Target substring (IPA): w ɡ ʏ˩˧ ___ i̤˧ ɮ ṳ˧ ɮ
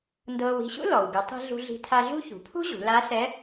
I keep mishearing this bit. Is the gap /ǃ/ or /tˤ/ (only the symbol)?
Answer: tˤ